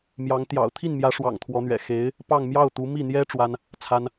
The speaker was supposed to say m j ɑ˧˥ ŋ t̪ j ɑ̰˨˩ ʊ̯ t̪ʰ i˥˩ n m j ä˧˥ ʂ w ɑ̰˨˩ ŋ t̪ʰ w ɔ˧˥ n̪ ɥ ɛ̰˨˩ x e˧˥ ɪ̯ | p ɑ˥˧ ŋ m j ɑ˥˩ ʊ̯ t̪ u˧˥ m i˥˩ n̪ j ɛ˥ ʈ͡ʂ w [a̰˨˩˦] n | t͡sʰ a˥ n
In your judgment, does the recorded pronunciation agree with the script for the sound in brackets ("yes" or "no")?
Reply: no